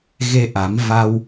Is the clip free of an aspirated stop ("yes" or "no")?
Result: yes